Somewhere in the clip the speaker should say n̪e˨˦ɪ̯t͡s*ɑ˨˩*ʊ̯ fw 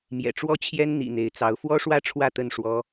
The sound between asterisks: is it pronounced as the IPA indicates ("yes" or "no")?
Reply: no